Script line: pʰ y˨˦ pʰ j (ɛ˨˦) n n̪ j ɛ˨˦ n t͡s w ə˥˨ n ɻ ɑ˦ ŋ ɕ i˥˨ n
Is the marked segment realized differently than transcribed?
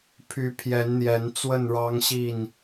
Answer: no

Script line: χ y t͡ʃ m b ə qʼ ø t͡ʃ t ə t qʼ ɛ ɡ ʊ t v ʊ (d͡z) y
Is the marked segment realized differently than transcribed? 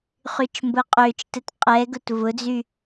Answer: no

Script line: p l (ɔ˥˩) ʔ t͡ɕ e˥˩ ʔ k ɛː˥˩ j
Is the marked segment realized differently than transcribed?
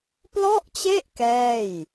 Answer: no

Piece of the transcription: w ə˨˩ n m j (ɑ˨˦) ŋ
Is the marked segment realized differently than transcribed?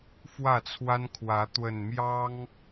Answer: yes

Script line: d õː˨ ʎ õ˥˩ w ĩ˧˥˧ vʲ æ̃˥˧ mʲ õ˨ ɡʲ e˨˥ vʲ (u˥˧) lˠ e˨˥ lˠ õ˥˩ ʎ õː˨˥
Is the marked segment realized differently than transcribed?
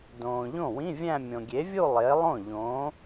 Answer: no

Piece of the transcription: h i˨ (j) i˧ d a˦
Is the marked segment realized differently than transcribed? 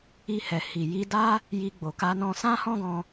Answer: no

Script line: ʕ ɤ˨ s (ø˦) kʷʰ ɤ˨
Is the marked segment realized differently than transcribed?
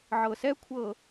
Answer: yes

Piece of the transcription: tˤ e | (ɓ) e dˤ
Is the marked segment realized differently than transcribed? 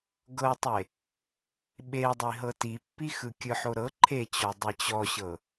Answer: no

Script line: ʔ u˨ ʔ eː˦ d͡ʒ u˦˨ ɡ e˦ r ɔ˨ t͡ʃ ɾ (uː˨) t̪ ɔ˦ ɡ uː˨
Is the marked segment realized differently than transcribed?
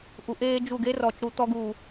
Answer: yes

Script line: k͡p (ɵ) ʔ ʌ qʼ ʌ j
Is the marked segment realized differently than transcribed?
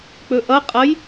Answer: no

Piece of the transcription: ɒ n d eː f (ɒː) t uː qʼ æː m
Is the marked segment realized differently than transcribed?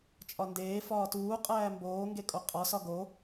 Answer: no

